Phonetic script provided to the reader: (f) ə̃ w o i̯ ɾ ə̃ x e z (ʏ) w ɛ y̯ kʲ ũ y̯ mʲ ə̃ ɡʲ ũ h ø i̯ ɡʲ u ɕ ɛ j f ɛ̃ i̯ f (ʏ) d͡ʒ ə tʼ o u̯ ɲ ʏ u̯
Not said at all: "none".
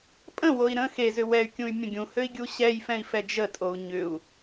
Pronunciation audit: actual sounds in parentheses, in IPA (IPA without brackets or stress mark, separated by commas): pʼ, ʏ, ɛ